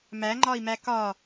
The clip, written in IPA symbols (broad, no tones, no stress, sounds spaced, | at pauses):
m æ ŋ͡ǃ ɒ i̯ m æ k ɒ